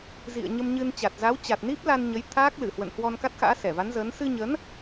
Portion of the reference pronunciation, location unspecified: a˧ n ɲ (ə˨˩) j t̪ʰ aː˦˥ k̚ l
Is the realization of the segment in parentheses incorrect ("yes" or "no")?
yes